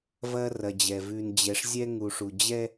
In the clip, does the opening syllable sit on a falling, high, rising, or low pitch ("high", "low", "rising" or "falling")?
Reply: high